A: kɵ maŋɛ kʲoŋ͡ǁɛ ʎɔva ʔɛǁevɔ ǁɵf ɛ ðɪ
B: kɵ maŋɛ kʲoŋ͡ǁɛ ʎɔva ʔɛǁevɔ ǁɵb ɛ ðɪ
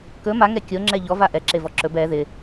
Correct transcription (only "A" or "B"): B